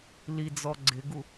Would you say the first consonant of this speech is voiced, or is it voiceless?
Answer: voiced